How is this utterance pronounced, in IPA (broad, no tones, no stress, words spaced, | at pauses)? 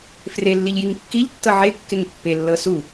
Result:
frelːiʎ jiŋkːiʎtːɤ ʕe kːeŋpːelːɤ su